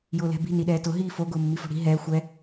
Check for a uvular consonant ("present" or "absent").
absent